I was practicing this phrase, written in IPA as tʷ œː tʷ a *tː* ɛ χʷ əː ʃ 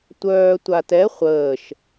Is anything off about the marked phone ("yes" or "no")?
yes